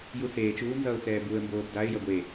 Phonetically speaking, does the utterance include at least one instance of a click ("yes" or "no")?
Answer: no